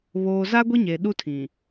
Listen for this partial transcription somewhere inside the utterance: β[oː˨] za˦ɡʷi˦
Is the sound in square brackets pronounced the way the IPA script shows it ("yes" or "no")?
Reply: yes